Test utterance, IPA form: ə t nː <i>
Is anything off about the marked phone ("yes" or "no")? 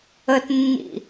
yes